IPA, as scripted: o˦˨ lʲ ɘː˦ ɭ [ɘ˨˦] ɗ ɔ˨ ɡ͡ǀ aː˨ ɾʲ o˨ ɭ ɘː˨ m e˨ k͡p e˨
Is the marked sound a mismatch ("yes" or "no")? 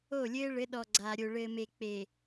no